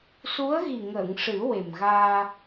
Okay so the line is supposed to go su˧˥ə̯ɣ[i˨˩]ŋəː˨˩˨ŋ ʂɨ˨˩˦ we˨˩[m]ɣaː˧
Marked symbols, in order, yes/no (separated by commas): yes, yes